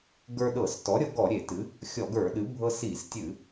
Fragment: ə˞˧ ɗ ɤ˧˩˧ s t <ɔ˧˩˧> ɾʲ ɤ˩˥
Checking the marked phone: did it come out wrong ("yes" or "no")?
yes